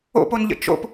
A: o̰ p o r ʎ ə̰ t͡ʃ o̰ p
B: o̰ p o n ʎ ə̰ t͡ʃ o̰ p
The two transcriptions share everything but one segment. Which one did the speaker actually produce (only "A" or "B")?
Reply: B